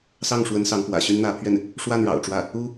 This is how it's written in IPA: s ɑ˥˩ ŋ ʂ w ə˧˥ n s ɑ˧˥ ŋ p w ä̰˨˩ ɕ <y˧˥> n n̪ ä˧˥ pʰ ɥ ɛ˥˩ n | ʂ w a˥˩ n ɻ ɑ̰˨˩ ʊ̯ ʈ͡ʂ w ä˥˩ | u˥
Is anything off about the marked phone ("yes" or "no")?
yes